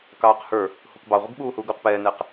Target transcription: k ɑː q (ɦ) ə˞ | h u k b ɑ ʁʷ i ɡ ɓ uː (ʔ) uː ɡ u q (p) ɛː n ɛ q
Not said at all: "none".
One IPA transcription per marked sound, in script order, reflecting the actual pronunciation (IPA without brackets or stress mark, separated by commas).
h, h, p